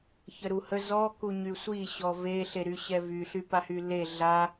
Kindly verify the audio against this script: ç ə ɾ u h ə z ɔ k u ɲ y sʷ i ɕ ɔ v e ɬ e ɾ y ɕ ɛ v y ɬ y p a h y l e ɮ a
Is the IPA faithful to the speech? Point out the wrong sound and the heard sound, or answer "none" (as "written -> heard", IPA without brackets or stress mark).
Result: none